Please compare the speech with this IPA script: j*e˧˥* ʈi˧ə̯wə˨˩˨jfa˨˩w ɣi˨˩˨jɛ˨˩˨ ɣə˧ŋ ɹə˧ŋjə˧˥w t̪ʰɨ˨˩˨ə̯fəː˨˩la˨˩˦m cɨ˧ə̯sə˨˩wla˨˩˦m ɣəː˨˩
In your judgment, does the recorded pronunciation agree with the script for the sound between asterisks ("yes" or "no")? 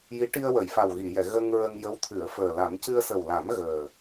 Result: no